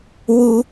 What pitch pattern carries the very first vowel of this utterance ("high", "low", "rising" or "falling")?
high